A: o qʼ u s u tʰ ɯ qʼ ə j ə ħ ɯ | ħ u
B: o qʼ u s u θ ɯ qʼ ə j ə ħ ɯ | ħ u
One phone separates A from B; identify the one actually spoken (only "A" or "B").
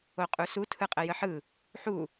A